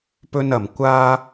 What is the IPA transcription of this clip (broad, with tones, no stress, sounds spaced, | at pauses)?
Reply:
p ɵ˧ n ɐ˨˩ m kʷ aː˧